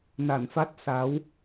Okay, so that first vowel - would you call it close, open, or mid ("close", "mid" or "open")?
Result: open